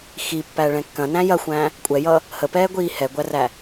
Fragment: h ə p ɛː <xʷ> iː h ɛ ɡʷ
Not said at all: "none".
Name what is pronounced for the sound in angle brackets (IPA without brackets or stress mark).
ɡʷ